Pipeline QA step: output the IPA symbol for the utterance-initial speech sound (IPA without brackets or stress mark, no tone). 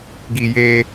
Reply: ɡ